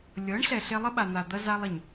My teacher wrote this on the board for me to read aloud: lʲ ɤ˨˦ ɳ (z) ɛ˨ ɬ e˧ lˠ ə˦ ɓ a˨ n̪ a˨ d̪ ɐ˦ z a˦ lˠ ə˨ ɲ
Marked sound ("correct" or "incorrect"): incorrect